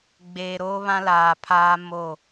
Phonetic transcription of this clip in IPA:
ɡ͡beː˨ɾoː˦βã˦laː˨ pʰaː˦ mo˦˨

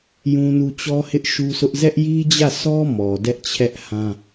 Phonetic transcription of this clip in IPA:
jũ˦nu˦ t͡ɕɔ˦hɪ˦ʔ ʃu˦sʊ˦ʔ zɛ˦ʔji˦d͡ʑä˦˨sɔ˦ mɔ˨dɛ˦ʔt͡ɕʰɛ˦ʔhã˦

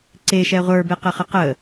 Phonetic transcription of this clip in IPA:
ǀeʃɛ ʁʷə˞beqɘχə qə

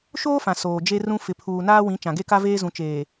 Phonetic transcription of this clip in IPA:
ʃoː˦fã˨ soː˨d͡ʒe˦rũ˦ fɪ˨pʰuː˨ naː˦wĩ˨˦ t͡ʃã˨ɡe˦ka˦veː˦ zũ˨t͡ʃeː˨

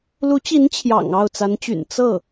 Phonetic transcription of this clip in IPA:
lu˧˥t͡ɕi˧˥n t͡ɕʰjɑ̰˨˩ŋɑ˥˩ʊ̯ t͡sa˧˥nt͡ɕy̰˨˩n t͡sɤ˥˩

